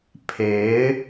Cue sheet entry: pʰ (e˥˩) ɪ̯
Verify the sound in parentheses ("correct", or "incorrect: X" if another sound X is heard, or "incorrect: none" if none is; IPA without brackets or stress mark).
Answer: incorrect: e˧˥